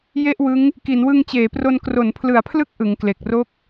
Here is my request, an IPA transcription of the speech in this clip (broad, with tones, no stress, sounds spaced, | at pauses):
j e˥˩ ʔ w ɯ˦˥ ŋ | k i˩˦ n w ɯ˧ ŋ t͡ɕ eː˩˦ p r o˧ n k r o˩˦ n pʰ l ɯ˩˦ a̯ pʰ l ɯ˦˥ k̚ ʔ ɯ˩˦ ŋ k l e˨˩ k̚ r o˥˩ k̚